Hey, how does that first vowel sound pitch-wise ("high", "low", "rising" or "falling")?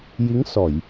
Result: rising